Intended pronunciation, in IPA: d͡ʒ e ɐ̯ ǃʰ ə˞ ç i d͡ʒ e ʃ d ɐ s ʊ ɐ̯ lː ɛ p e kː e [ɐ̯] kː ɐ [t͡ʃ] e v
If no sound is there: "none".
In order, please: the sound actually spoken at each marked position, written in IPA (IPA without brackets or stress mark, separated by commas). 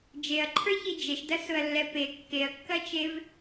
ɐ̯, t͡ʃ